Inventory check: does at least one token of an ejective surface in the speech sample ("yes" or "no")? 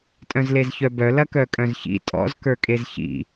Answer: yes